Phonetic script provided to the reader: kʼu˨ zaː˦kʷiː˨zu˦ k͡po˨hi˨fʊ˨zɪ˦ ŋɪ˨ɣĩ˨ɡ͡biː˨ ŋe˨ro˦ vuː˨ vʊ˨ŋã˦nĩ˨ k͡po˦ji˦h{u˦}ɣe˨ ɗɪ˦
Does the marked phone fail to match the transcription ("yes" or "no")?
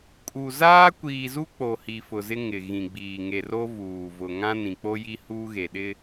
yes